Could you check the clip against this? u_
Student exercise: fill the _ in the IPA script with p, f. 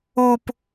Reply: p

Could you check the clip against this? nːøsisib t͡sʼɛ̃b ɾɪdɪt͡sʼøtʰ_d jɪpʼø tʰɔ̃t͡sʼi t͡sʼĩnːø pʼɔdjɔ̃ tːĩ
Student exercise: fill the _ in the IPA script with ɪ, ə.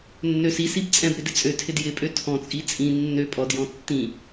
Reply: ɪ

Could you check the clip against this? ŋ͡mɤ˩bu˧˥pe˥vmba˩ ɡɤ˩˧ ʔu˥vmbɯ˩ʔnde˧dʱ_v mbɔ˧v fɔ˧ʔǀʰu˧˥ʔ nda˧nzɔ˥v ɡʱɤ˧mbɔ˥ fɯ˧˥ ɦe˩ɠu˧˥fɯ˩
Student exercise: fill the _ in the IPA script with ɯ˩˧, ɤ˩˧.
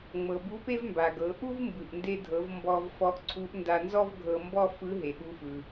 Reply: ɤ˩˧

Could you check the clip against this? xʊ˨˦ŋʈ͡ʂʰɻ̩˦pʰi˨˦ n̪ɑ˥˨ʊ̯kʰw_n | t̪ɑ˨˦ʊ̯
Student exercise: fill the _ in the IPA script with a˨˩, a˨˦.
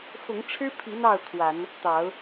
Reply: a˨˦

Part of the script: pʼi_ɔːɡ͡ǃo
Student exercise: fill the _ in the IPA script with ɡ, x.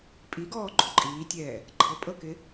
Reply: ɡ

